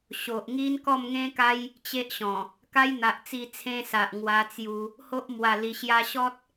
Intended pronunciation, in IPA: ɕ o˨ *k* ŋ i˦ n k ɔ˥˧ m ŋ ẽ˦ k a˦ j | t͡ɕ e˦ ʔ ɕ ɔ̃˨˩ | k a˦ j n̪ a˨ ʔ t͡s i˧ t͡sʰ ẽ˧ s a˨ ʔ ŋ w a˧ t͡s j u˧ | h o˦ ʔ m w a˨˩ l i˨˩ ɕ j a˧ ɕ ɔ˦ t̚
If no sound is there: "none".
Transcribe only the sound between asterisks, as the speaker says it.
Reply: ʔ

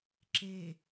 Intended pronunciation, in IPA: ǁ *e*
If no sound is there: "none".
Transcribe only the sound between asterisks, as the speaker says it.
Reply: e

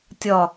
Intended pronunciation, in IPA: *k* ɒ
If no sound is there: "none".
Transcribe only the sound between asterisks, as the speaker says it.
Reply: tʲ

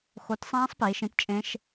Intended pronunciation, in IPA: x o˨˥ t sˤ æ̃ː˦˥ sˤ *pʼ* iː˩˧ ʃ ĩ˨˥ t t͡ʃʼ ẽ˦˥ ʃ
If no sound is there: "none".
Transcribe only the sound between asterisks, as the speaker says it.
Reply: p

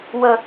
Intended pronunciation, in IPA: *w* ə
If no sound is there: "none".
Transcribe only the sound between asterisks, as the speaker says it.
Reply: w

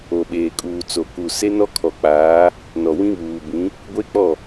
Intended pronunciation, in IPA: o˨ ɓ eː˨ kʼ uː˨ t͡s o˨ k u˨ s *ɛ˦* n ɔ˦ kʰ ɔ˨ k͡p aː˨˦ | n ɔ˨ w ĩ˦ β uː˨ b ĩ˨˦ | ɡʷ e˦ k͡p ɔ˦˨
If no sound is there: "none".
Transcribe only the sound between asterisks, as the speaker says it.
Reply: e˦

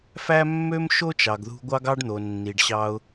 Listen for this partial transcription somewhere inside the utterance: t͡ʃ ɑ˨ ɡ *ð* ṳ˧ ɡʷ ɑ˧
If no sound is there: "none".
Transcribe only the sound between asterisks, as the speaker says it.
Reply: ð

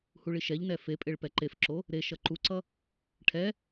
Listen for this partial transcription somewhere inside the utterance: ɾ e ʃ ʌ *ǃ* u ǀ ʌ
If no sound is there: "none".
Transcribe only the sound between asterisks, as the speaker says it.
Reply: ǃ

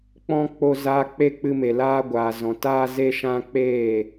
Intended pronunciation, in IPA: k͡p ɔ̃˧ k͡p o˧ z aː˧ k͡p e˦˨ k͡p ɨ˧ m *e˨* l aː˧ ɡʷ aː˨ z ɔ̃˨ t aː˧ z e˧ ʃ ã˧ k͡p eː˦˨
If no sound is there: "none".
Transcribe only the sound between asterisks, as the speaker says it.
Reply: e˨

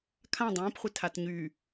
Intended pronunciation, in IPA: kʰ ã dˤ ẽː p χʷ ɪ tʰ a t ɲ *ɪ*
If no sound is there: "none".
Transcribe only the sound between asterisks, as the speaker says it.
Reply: y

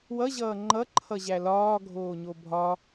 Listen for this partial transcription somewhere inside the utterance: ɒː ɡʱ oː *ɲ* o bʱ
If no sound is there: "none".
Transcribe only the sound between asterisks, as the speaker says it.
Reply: ɲ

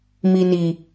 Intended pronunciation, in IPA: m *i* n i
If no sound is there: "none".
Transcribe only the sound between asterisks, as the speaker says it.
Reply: i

